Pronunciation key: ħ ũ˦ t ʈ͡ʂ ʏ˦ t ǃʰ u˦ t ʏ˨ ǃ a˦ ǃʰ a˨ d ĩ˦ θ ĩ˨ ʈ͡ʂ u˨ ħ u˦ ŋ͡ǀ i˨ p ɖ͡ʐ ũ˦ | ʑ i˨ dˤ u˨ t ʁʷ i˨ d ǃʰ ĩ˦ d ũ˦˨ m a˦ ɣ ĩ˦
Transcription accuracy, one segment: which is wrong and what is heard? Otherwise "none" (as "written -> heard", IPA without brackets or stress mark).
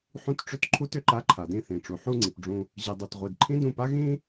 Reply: m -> p